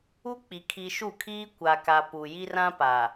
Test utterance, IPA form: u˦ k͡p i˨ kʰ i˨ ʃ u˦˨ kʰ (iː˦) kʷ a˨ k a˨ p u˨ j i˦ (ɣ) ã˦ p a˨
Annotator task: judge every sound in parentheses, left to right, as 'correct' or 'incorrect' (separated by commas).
correct, incorrect